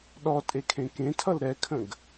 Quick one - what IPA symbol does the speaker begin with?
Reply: ɗ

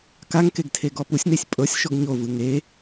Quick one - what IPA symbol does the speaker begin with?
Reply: k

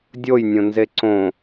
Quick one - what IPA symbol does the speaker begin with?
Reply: dʲ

